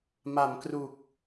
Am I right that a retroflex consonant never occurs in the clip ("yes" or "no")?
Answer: yes